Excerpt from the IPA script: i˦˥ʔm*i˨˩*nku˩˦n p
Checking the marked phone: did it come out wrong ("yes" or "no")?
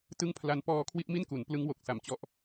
yes